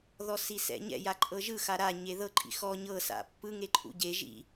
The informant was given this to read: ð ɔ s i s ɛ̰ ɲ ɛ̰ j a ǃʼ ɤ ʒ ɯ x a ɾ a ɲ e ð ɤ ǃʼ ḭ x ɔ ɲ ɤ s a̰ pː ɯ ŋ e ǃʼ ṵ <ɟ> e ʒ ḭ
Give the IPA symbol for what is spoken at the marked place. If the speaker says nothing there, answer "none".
ɟ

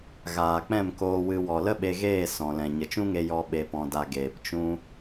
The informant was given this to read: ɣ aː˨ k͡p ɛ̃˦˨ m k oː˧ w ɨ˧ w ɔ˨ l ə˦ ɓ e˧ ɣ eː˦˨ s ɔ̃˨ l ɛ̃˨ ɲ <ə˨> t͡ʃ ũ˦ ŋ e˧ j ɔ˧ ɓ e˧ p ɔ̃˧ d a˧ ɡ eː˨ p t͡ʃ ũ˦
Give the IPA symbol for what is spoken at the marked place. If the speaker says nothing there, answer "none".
ə˨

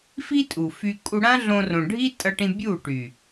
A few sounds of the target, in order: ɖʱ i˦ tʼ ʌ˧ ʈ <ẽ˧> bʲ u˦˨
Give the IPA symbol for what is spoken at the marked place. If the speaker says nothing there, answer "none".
ĩ˧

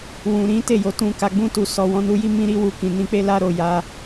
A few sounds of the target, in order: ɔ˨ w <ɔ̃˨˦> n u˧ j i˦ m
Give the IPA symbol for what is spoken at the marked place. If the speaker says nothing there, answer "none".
ɔ̃˨˦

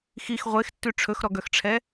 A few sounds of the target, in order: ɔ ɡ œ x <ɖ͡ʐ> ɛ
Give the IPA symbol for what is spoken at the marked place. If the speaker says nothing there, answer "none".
ʈ͡ʂʰ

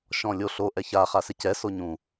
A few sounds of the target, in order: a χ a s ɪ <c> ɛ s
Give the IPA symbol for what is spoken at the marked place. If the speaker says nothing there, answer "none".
c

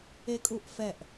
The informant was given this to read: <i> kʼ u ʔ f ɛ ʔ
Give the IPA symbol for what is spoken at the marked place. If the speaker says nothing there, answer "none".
e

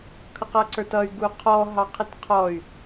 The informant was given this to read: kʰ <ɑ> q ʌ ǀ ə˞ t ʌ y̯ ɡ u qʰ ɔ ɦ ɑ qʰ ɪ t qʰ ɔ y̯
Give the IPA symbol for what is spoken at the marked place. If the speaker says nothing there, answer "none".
ʌ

